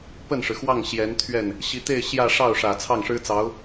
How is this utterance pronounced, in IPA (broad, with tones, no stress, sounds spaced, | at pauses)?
p ə˥˩ n ʂ ɻ̩˩ x w ɑ˥˩ ŋ ɕ j ɛ˧˥ n t̪ʰ ɥ ɛ˥˩ n | ɕ i˧˥ t̪ e˥˧ ɪ̯ ɕ j ä˥˧ ʂ ɑ˥˩ ʊ̯ ʂ ä˨˩ t͡sʰ ɑ˥˩ ŋ ʂ ɻ̩˥ t͡s ɑ˧˥ ʊ̯